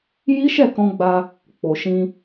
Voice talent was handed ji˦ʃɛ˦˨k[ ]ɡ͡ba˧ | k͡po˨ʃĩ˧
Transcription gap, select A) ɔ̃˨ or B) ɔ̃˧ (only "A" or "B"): B